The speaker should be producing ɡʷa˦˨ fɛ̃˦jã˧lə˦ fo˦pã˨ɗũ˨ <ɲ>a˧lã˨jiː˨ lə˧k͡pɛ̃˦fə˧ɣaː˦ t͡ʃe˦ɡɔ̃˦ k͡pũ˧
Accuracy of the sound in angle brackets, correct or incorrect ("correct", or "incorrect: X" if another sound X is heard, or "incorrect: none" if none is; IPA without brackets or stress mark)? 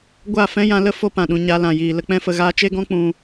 correct